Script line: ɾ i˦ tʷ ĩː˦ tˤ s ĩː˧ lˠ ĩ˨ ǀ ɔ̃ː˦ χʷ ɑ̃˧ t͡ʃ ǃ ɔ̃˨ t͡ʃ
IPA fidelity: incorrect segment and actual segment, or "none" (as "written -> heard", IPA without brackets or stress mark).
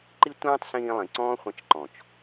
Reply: ɾ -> ǃ